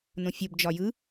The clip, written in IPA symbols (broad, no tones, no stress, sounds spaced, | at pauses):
n õ fʲ o b d͡ʒ ɒ j ɯ